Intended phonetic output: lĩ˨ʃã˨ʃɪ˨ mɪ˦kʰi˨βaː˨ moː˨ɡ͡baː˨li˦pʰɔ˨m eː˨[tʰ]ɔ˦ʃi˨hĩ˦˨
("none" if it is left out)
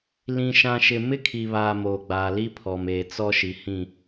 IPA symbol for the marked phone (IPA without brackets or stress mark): t͡s